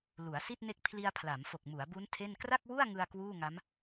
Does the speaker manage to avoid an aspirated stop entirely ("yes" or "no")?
no